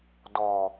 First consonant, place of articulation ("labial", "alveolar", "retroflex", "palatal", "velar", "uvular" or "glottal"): alveolar